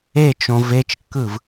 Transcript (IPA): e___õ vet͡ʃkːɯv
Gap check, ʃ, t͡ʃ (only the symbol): t͡ʃ